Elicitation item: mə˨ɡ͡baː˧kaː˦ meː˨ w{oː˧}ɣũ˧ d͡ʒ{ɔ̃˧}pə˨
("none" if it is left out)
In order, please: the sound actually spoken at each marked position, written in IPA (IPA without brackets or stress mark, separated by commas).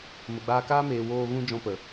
oː˧, ɔ̃˧